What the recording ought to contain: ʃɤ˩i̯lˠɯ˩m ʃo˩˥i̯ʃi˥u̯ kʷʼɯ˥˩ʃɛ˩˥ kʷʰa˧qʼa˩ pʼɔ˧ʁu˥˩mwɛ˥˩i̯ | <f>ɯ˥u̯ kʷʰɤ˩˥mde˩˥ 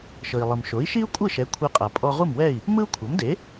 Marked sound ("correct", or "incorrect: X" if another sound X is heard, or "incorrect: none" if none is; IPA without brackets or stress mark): incorrect: m